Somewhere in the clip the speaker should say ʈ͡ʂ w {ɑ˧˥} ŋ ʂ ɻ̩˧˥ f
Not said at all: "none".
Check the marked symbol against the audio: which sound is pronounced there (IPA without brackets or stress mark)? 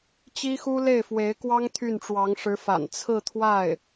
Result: ɑ˧˥